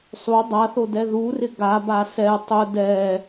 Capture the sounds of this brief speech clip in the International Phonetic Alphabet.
sˤ u dˤ a θ o d ɛ ð u r ɪ ɡ a b a s ɛ tˤ ʊ d ɛ

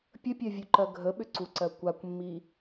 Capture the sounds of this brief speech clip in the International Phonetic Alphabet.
pʲ ə pʲ ɜ vʲ u ǃ ɜ ɡʱ ə ɓ ʏ ǀ u ǀ ɜ kʷ a kʷ mː i

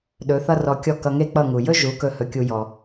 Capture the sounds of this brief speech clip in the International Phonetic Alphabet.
ɗ ɵ˩˥ θ ʌ˥ r ɔ˧ kʲ ɔ˥˩ k ʌ˧ ŋ e˥ k͡p ʌ˥˩ ŋ u˩ j ɵ˥ ʒ u˩˥ k ɵ˧ h ɵ˧ kʲ u˧ j ɔ˩

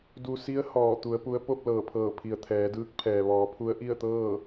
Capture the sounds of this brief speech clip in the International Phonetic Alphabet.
d u˧ s i˧˥ ə̯ h ɔː˧˩ t̪ u˩˧ ə̯ p u˧˥ ə̯ p o˥˨ p̚ l ɤː˧˩ pʰ ɤː˧˩ pʰ i˩ ə̯ t̪ʰ ɛː˩˧ d ɯː˧˥ k̚ pʰ ɛː˩ ʋ ɔː˩˧ pʰ u˧˥ ə̯ ʔ i˥˨ ə̯ t̪ ɤː˥˨

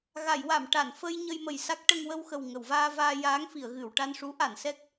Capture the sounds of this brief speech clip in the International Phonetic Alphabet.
ɣ a˨˩˨ j w a˨˩˨ m ʈ a˨˩˨ n f ə˧ j ɲ ə˧ j m ə˨˩ j s a˦˥ k̚ ʈ ə˧ ŋ w ə˧ w x ə˨˩ w ŋ ə˨˩˨ w v aː˧ v aː˧ j aː˧˥ ŋ f i˨˩˨ ə̯ ɣ ɨ˨˩˨ w ʈ a˧ n ʂ u˧˥ ʔ a˨˩˨ n s ɛ˦˥ k̚

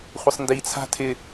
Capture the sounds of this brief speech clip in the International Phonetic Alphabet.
χʷ ɪ sˤ n d i t͡sʰ a̤ tʰ ɪ

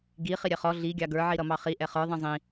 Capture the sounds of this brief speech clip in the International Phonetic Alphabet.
ɡ i χ i ɾʲ ɛ χ ɔ ɮ i ɡʲ ɑ ɡ ə˞ ʕ i ɾ ʌ m ɑ χ i ʔ ɛ χ ə˞ ðˤ ĩ zˤ ĩ

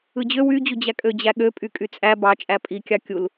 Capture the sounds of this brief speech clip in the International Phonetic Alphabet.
ɯ d͡ʑ ø w y d͡ʑ u d͡ʑ æ kʼ ø d͡ʑ æ ɠ ø pʼ y kʼ y t͡sʼ æ b ɑ t͡ʃʼ æ pʼ i kʲ ɑ kʲ u l

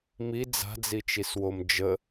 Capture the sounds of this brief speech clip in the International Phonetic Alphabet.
m i d͡z a̤ d͡z i t͡ʃ i s w o m d͡ʒ ə

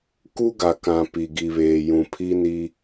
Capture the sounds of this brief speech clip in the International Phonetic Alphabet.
k u˦ ɡ a˨ k ã˨ p i˨ ɡ i˨ β eː˨ j ũ˨ pʰ i˦ n i˦

